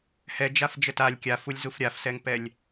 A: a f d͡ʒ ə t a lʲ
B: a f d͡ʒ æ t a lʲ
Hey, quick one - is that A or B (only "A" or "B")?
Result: A